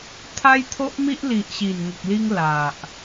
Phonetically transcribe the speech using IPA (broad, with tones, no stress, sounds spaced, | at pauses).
t̪ʰ a˦ j t̪ʰ o˦ ʔ m i˦ ʔ l i˨ ʔ ɕ i˨˩ n ŋ ə˨ k̚ l i˧ ŋ l a˨ ʔ